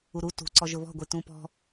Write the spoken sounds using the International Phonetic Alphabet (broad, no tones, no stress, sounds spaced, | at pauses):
u ɾ u t ṳ ǀ ɔ ʒ ʊ β ɔ̤ ɡʷ i t ũ p ɔ̤